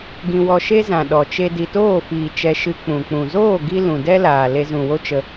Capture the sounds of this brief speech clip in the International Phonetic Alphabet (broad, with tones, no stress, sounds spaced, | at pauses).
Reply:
ɡ ĩ˧ w ɔ˧ ʃ e˦ z ã˨ ɗ ɔ˨ t͡ʃ e˧ d i˨ t oː˦˨ f iː˨ t͡ʃ ɛ˧ ʃ ɨ˧ k͡p ũ˨ k͡p ũ˨ z oː˦˨ ɡ i˧ l ũ˨ d ɛ˦ l aː˨ l e˧ z ũ˨ w o˦ t͡ʃ ə˧